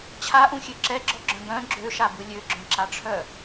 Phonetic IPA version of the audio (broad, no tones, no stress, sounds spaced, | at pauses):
t͡ɕʰ a ʔ ũ xʲ ø ǁ ɛ ɡ͡ǁ ɔ ɡ͡ǁ œ̃ ɡ œ̃ ɡ͡ǁ ø ʃ a b ɯ lʲ ø ɡ͡ǁ œ̃ ǁ a ʈ͡ʂʰ œ